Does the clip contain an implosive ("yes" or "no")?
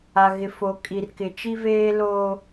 no